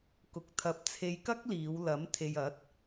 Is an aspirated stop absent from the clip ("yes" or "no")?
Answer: no